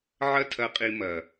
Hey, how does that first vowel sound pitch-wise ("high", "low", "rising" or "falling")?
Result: high